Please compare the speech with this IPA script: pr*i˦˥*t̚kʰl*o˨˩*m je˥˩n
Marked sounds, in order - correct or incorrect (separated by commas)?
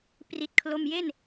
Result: correct, incorrect